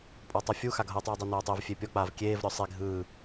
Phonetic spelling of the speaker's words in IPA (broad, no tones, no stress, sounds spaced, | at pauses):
pʼ ɔ tˤ u fʲ u x a ɡʱ ɤ tˤ uː dˤ o n oː tˤ e v fʲ e pʲ ɔ k͡p aː v kʲ eː v ɾʲ ɔ sˤ i ɡʱ ɯː